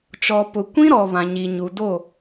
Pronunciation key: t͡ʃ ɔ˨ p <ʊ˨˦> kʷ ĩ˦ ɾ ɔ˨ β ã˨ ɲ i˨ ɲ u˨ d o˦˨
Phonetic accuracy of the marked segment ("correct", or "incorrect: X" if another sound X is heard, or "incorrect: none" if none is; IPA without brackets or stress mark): incorrect: ʊ˨